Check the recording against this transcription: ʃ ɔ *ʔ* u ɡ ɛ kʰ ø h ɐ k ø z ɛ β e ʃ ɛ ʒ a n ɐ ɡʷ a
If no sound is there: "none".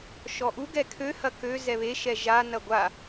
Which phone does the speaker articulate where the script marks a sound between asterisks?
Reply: ʔ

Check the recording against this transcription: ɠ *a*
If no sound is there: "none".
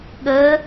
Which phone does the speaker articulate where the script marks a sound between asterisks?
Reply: ə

